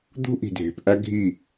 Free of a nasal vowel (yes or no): yes